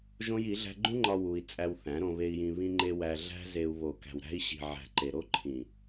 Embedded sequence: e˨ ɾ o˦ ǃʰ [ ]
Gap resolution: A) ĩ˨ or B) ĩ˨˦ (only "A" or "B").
A